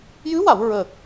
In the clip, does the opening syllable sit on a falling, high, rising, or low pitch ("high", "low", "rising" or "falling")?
rising